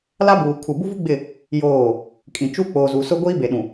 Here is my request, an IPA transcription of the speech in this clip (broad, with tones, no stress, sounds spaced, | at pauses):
l a˦ b uː˨ kʰ u˨ b u˦ v u˦ ɡ͡b ɪ˦˨ | j oː˦˨ | kʼ ĩ˨ t͡ʃ u˦ k͡p oː˨ z u˨ s ʊ˦ ɡʷ iː˦ b e˨ ɗ ũ˨